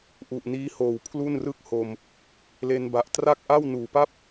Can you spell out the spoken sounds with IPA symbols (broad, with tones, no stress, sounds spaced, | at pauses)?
ʔ u˨˩ ʔ n iː˦˥ h oː˨˩ w pʰ l u˥˩ n r ɯ˥˩ k̚ h o˧ m | l e˧ n b a˨˩ ʔ t r a˥˩ k̚ ʔ a˥˩ w n uː˨˩ p a˥˩ p̚